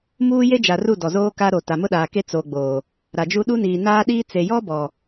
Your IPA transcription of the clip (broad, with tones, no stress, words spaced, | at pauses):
muː˦ je˦d͡ʒa˨ ru˦˨ dɔ˨zoː˦ka˦ɾo˨ ta˨mʊ˦ɗaː˨ke˦ t͡so˨ɡ͡boː˨ | ɾa˨d͡ʒu˦ ɗu˦niː˨naː˦ ɗiː˦ t͡se˨jɔ˦bɔ˨